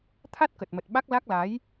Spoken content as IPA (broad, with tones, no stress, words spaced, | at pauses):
t̪ʰa˦˥t̚kə˨˩t̚mə˨˩t̚ ɓa˦˥k̚la˦˥k̚la˨˦j